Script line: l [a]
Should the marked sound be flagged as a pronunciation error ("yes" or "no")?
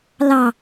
yes